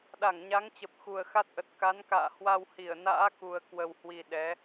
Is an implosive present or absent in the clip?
present